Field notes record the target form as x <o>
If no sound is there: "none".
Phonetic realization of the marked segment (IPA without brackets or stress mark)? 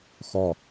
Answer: ɔ